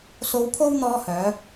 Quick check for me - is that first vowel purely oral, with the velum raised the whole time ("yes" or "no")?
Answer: yes